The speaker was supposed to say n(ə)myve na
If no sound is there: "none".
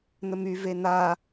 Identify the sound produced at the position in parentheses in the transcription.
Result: ə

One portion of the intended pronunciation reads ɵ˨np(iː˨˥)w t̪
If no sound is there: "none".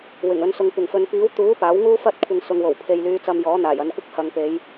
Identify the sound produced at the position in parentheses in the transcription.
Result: iː˨˥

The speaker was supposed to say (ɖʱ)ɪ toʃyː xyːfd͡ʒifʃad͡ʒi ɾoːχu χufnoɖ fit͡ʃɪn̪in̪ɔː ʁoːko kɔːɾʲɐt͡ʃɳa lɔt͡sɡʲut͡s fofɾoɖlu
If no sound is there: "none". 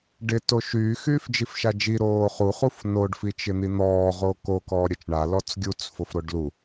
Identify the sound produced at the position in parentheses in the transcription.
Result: ɖ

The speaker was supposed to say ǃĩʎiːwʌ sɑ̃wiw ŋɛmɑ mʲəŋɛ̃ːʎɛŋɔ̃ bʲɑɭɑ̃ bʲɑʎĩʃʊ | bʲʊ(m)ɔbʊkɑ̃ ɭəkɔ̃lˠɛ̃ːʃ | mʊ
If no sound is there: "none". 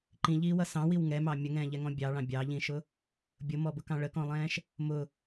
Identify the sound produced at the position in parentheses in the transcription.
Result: m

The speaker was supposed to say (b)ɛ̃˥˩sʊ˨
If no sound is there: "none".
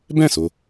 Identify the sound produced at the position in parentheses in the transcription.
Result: b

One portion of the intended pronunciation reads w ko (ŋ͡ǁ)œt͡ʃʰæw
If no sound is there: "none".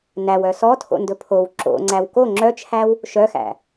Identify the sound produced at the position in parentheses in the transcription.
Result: ŋ͡ǁ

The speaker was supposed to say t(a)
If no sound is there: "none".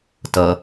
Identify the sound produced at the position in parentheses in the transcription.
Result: ʌ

